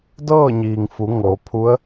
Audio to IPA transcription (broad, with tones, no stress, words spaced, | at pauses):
dɤː˥˨ɲiː˩ŋfu˩˧ ŋo˩˧pʰu˧˥ə̯